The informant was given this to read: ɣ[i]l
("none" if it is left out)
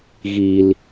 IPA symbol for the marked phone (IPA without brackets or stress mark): i